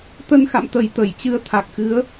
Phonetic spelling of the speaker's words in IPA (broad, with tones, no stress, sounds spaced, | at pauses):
t̪ ə˧ n x a̰˧˨ m t̪ ə˨˩ j t̪ ə˧˩ j t͡ɕ ɨ˧ ə̯ t̪ʰ a˨˩ k̚ x ɨ˨˦ ə̯